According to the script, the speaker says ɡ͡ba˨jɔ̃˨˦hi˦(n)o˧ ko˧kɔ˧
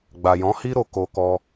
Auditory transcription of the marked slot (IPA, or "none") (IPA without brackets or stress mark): ɾ